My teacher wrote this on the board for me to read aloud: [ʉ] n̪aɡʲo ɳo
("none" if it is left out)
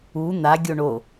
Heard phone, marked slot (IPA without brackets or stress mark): u